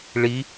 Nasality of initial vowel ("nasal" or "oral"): oral